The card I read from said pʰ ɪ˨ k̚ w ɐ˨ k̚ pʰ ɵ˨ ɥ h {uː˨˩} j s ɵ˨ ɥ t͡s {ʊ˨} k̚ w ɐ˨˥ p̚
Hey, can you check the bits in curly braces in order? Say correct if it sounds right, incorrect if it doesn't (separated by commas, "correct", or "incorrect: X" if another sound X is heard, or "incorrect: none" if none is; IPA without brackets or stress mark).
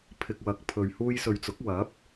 incorrect: uː˧, incorrect: ʊ˨˥